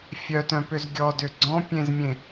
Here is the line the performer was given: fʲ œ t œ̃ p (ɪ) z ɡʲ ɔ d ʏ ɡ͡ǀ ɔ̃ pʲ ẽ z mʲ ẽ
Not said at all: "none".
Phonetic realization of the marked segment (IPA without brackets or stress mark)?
ʏ